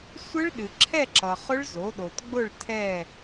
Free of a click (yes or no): no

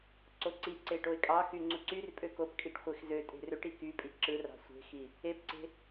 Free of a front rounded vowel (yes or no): no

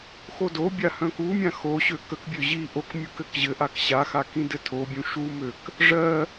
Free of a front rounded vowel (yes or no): no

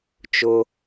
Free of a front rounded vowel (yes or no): yes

